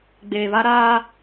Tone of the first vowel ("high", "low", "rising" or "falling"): low